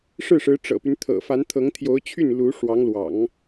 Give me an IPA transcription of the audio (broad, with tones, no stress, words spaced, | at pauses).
ʂɻ̩˥˩ʂɻ̩˧˥ ʈ͡ʂɤ̰˨˩py˦nt̪ʰɤ̰˨˩ fa˧˥nt̪ʰɤ˧˥ŋ t̪ʰjo˧˥ʊ̯t͡ɕʰy˥˩n lu˧˥ʂwɑ˧˥ŋlwɑ̰˨˩˦ŋ